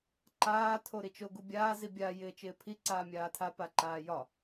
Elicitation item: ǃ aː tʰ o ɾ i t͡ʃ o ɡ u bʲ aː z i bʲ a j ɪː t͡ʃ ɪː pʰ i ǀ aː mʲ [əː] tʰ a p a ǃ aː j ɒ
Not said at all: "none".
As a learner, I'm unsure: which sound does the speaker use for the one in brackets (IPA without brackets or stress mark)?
aː